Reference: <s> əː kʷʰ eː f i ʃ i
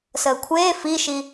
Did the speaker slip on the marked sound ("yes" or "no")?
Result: no